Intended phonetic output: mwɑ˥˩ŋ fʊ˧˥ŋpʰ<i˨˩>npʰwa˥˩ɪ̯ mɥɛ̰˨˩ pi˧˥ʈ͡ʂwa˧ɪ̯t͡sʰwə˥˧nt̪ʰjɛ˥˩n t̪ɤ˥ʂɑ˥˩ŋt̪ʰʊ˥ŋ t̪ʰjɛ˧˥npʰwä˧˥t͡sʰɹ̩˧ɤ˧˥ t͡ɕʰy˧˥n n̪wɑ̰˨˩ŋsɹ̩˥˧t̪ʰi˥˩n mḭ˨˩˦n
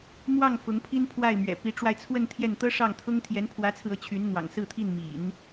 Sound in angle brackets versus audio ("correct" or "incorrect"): incorrect